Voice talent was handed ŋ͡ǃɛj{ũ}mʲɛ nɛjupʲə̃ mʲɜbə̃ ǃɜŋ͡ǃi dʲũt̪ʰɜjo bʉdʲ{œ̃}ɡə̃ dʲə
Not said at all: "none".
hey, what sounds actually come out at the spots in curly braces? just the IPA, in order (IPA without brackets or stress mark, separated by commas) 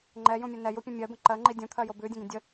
ũ, ə̃